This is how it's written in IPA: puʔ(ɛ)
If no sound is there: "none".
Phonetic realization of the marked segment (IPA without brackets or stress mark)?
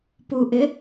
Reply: ɪ